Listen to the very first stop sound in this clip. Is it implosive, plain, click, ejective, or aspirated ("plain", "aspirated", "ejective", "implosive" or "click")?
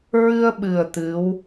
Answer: implosive